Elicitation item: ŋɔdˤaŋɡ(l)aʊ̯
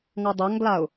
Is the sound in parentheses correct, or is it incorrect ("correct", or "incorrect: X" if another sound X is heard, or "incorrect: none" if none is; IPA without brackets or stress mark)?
correct